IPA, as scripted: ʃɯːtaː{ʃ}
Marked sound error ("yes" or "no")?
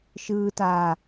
yes